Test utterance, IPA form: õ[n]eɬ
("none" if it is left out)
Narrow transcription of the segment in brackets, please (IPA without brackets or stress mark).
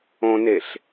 n